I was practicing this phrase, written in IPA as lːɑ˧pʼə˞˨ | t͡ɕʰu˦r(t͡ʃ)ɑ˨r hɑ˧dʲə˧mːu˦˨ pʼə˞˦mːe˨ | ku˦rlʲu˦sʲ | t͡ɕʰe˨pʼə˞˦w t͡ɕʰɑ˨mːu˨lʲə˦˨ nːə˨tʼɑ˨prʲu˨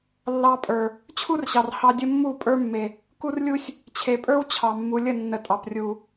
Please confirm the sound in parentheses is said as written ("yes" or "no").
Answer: no